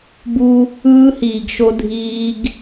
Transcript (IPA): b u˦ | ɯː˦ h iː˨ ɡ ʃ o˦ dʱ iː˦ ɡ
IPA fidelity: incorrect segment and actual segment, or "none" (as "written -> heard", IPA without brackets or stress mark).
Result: none